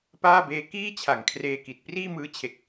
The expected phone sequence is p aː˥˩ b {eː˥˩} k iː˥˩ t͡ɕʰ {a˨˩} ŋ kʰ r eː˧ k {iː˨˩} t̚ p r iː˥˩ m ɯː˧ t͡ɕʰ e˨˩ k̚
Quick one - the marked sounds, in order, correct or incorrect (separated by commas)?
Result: incorrect, correct, incorrect